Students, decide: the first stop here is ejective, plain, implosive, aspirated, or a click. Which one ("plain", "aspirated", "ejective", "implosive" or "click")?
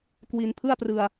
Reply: plain